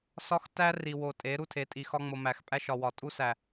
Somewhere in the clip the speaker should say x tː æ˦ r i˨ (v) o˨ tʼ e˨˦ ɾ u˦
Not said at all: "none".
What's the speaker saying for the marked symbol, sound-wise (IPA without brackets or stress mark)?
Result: w